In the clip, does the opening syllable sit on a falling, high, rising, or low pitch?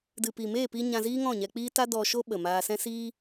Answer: low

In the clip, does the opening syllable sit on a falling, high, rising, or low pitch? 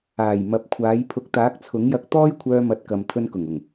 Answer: low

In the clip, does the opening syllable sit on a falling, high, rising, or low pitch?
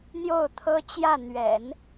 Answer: falling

